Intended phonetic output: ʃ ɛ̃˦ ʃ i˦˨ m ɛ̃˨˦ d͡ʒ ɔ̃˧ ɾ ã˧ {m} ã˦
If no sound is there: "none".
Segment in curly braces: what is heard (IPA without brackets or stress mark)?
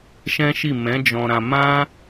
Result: m